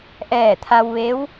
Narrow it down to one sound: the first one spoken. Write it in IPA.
ʔ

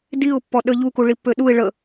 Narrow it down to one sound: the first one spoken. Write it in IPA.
d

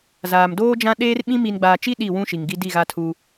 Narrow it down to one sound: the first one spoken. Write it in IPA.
z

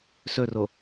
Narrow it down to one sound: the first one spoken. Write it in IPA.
s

